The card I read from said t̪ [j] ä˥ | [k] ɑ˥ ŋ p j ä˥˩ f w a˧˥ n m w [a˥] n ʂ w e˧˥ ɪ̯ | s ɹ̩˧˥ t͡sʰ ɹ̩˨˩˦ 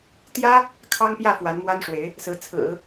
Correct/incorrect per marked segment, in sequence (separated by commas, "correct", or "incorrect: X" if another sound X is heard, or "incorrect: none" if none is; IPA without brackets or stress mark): correct, incorrect: kʰ, correct